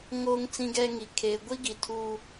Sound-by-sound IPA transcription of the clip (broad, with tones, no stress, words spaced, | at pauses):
ŋoː˦ŋt͡sĩ˦ɡɛ˦ŋi˨ kʰeː˨ɡʷi˦ ɡi˨tʰuː˦